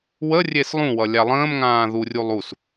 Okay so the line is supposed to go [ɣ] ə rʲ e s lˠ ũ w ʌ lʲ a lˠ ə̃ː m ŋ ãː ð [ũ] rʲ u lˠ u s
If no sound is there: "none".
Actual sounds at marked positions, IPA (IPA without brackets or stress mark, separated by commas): w, u